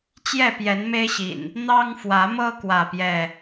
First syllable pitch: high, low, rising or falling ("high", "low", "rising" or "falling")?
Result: falling